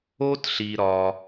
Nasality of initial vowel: oral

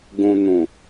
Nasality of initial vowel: nasal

